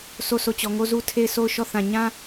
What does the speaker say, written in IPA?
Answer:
sʰ o˦˨ sʰ o˦˨ t͡ɕ ɔ˨ ŋ o˦ z u˦ tʰ e˦˨ ɪ̯ sʰ o˦˨ ʊ̯ ʃ ɔ˦˨ θ ã˨ ɲ ã˦

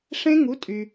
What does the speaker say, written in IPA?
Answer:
ʂ ẽ˦˥ ŋ u˩˥ tʼ y˩

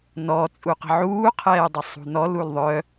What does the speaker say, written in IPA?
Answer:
n ɔ t͡sʼ u q ə̤ ʕ uː qʰ ɛː dˤ ə sˤ ṳ n ɔ l u l ðˤ œ

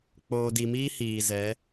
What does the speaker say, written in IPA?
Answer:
k͡p oː˨ d i˨ m iː˦ h iː˨ z ɛ˨˦

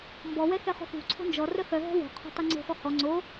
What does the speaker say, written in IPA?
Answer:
m b ɔ w ɛ x ɛ χ o̤ x ṳ ǀʰ o̤ n d͡ʒ ɔ r œ x œ ɦ ɛ̤ w o̤ qʰ o̤ tˤ ɛ ŋ͡ǀ o̤ x ɔ h ɔ ŋ͡ǀ o

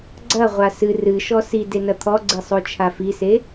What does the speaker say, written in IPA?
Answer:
ɡ͡ǀ ɐ ʁʷ a s ɨ r ɨ ʃ ɔ s i d e n ɐ t̪ʰ ɔ ɡ͡ǀ i sˤ o t͡ʃʰ a f i s e

